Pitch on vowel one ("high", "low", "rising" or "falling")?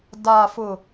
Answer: low